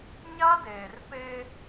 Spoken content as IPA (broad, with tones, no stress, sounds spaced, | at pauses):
ɲ a˦ d eː˨ r p e˦